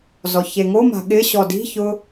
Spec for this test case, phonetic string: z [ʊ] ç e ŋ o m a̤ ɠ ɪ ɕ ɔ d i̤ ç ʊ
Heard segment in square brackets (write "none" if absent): ɔ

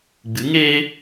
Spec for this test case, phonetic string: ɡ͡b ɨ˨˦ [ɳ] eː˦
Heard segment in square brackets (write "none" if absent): ŋ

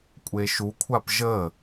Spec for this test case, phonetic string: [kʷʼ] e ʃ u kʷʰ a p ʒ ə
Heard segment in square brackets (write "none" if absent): kʷʼ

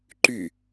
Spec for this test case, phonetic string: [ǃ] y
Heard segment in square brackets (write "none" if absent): ǃ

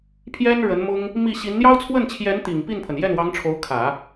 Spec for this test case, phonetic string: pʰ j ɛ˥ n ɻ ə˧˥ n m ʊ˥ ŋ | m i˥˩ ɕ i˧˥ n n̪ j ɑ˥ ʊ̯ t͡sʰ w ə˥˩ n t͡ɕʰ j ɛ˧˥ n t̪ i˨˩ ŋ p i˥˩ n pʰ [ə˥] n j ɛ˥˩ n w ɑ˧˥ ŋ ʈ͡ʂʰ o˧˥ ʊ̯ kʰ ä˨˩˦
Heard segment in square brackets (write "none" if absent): ə˩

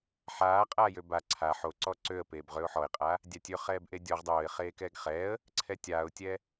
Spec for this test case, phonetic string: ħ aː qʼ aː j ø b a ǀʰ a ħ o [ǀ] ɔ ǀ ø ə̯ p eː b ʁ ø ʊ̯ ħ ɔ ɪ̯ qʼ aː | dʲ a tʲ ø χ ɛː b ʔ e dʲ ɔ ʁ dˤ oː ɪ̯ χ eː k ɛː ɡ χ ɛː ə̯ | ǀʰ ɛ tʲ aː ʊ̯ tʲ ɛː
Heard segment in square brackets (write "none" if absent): ǀ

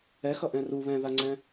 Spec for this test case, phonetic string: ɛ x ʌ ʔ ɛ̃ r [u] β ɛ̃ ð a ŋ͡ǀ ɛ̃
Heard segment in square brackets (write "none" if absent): u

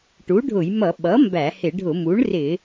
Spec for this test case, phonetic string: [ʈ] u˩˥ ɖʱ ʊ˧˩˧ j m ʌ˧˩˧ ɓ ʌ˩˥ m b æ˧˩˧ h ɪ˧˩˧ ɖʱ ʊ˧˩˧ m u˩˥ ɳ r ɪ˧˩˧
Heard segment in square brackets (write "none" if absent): ʈ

